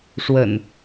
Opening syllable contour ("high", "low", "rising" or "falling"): low